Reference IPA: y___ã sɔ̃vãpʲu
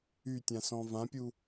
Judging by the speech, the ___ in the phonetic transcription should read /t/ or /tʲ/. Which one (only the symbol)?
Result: tʲ